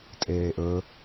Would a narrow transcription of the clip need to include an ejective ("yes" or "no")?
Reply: yes